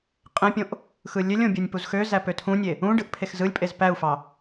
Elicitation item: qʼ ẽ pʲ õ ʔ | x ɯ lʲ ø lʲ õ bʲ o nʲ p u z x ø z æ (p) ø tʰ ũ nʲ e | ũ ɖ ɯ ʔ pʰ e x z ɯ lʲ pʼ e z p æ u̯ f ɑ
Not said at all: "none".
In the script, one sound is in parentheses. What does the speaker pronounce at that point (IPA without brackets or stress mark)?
p